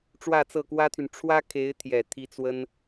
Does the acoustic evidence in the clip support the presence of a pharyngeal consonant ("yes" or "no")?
no